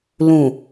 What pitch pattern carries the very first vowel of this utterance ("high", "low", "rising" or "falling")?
low